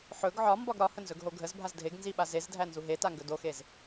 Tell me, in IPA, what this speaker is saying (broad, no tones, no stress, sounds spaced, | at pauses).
ħ ɵ ɡ ʕ ɒ m b ɒ ɡ ɾ ɒ h ə n z ɵ ɡ ɦ o ɡʱ ə z bʱ a z dʱ e ɡ n z i ɓ a z e z dʱ æ n z u ɦ e t a ŋ ɡ ɵ d o x e z